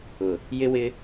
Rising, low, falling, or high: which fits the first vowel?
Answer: low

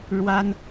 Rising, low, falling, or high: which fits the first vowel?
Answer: high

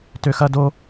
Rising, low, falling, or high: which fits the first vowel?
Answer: high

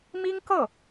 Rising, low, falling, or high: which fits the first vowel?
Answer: high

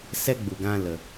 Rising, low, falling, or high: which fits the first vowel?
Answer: high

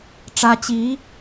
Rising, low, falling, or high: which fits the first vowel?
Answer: high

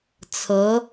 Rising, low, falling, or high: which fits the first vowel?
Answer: rising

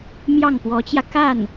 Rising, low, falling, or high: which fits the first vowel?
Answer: falling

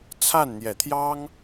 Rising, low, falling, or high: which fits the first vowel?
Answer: falling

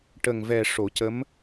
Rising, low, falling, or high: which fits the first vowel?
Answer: low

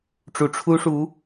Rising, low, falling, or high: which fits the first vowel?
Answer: rising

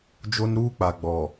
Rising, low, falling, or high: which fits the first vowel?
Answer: high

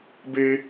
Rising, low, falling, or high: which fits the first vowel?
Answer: high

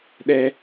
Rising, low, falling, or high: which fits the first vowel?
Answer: high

